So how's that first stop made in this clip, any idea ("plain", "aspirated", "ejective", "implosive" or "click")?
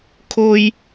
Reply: aspirated